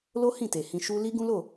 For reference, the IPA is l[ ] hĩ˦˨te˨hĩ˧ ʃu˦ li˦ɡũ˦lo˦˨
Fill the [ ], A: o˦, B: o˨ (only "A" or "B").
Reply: A